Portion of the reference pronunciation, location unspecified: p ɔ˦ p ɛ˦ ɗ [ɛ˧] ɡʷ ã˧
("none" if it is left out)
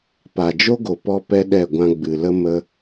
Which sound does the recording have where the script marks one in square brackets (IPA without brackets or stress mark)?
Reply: ɛ˦˨